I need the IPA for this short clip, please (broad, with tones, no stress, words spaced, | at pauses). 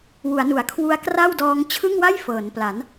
wu˩˦a̯nu˩˦a̯kʰwu˦˥a̯ kra˥˩w dɔː˦˥ŋ t͡ɕʰɯ˥˩ŋwa˥˩j fɤː˩˦npla˩˦n